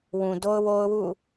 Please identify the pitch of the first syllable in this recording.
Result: low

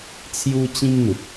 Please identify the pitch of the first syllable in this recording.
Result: high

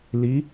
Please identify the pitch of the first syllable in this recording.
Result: rising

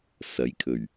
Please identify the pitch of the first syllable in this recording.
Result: rising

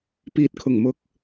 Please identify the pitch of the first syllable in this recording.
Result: low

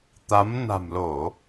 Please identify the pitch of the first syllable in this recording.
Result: rising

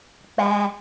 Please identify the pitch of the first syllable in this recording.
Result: low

